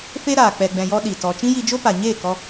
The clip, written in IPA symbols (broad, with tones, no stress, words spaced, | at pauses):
fe˦ ɾaː˨ k͡pɛ˨ɡ͡bɛ̃˨jɔ˧ ɗi˨tɔ˧ t͡ʃĩ˦ji˧d͡ʒo˦pa˨ ɲeː˦˨kɔ˧